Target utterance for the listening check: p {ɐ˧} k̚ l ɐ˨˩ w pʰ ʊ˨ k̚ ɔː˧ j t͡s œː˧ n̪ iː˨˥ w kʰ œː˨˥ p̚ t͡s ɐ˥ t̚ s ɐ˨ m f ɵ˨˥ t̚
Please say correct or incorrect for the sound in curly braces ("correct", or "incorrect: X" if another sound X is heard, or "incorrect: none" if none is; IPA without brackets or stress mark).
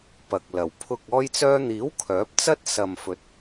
incorrect: ɐ˨